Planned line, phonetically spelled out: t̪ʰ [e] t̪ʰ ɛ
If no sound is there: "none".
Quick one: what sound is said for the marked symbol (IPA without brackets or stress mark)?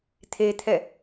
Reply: e